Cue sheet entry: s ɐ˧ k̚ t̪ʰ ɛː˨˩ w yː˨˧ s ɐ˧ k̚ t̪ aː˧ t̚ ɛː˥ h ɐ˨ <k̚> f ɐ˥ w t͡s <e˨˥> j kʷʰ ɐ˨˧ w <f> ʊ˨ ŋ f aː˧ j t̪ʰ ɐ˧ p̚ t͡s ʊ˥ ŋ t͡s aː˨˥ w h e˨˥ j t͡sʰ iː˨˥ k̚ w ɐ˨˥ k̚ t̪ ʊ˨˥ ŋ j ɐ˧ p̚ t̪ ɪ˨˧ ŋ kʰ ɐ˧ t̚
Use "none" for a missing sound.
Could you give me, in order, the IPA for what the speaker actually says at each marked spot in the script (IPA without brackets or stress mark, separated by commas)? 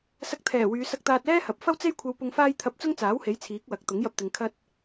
p̚, e˥, p